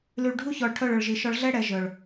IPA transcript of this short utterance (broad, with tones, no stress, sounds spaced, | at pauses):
l y˨ ɭ ɖʱ u˦ ç ɔ˨ ɭ ʈʰ œ˦˨ ɭ œ˨ ɭ ʒ i˨ ʃ ɔ˦ ɭ ɮ ɛ˦ ɽ ɛ˨ ʒ œ˨ ɭ